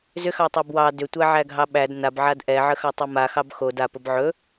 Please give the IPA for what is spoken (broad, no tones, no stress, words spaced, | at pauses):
zʏxɑtˤɑb wɑ dʏtʷæʕæɡʱɑ ɓæd nabʕad ʔɛʕəxɑtˤɛ maxɑb xod apəb ʕɵ